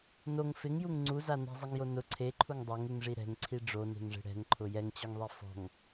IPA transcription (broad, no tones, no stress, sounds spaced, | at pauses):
n o ŋ f ɪ ŋ j u ŋ ŋ͡ǀ u z a n ɛ̤ zˤ i ŋ j o n ʊ ǀʰ e ǃʰ u ŋ dˤ a ŋ u ŋ ʐ i ɾ ɛ̤ ŋ ǀʰ i ɖ͡ʐ o n e̤ ŋ ʐ e̤ ɽ ɛ̤ ŋ ǃʰ ʊ j ɛ ŋ t͡ɕ ɔ ŋ ðˤ i f ɔ̤ ŋ